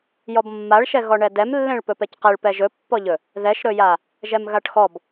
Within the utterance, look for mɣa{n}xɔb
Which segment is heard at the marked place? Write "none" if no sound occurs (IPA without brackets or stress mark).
ʈ